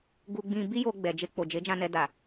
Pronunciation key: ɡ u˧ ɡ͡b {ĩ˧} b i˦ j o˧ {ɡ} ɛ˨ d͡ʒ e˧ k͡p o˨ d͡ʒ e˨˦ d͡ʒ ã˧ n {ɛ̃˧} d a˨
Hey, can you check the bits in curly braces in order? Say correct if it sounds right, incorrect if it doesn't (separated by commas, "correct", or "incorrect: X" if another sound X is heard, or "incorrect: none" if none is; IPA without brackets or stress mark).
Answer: correct, incorrect: ɡ͡b, incorrect: ɛ˧